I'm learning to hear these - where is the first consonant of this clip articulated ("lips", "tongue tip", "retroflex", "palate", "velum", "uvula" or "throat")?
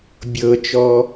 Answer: lips